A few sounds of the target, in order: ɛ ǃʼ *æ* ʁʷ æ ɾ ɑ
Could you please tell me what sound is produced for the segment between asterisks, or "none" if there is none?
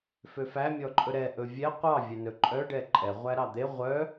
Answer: ɛ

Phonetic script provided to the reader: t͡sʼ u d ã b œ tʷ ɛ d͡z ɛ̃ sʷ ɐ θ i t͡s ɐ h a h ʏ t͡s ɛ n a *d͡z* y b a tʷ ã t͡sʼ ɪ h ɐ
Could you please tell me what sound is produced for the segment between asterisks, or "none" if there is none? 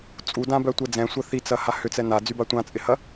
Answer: d͡z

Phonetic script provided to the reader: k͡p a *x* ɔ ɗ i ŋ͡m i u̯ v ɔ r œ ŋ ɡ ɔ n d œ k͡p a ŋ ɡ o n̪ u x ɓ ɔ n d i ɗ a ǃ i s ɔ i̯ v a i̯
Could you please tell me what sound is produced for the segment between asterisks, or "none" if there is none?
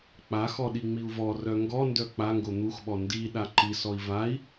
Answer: x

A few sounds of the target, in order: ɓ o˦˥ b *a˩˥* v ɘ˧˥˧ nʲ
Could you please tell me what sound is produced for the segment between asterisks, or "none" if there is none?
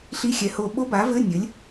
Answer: a˩˥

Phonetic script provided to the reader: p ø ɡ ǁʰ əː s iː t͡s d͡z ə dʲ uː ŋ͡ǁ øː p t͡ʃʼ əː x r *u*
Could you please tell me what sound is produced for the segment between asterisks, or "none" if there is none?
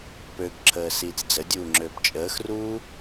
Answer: uː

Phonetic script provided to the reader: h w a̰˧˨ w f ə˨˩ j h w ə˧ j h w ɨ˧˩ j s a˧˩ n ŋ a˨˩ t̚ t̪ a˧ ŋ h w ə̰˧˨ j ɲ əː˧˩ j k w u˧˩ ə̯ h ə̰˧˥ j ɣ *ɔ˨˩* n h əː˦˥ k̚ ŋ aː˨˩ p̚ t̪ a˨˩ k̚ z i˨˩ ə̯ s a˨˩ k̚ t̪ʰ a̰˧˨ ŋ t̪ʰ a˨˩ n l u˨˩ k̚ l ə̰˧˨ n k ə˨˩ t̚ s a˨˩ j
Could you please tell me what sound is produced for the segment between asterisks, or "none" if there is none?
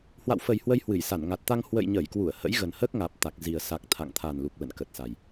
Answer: ə˨˩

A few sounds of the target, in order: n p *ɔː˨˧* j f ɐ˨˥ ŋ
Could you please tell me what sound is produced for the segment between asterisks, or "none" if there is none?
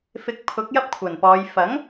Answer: ɔː˨˧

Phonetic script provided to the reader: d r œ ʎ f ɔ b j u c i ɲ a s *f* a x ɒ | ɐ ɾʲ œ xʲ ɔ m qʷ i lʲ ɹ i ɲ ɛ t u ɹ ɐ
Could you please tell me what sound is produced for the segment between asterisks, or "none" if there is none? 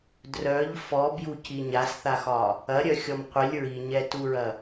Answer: θ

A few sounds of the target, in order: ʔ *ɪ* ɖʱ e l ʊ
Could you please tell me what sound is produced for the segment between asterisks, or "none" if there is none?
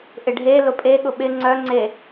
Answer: ɪ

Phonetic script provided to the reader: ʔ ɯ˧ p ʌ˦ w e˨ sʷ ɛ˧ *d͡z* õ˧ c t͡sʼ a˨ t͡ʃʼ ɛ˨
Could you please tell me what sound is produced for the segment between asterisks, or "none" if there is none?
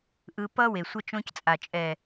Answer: t͡ʃ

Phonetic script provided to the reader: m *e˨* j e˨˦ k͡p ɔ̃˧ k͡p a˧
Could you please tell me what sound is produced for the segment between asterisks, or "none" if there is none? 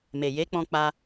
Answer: e˨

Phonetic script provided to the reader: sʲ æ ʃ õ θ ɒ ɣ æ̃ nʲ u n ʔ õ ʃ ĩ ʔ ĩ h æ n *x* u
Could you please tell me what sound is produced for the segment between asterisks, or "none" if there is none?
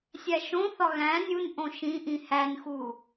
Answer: x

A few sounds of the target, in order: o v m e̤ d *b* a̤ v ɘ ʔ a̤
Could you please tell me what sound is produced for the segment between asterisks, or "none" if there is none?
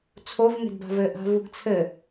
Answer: b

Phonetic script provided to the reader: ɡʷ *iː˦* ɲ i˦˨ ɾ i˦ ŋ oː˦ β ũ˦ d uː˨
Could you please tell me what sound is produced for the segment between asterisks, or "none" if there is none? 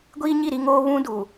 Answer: iː˦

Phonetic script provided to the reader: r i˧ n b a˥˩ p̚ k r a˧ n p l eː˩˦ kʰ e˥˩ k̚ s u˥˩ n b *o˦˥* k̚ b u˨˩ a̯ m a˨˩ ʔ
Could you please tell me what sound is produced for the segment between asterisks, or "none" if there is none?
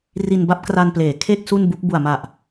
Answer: u˦˥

